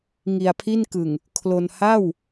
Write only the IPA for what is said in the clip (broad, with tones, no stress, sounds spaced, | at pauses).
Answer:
ŋ i˧ a̯ pʰ i˥˩ n k ɯ˨˩ ŋ | kʰ l o˧ n h a˥˩ w